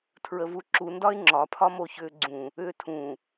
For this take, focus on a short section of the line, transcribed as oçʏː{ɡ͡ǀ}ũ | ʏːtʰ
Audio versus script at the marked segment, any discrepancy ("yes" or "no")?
no